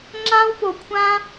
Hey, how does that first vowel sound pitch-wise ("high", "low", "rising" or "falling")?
high